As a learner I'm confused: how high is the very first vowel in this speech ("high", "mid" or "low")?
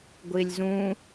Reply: high